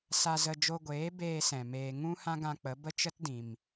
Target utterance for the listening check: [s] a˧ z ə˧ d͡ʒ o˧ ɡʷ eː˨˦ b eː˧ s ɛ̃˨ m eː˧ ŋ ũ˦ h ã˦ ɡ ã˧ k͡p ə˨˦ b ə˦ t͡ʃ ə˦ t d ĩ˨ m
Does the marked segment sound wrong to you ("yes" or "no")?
no